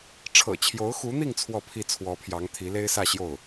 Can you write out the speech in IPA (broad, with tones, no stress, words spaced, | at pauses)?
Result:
ʈ͡ʂʰɤ̰˨˩t͡ɕʰjo˧˥ʊ̯xu˧˥n̪i˥˧ŋ t͡sʰwɔ˥˧ pʰi˥˩t͡sʰwɔ˧˥pʰjɑ˧˥ŋ t̪ʰi˧˥le˥ɪ̯sä˥˧ ɕjo˥˩ʊ̯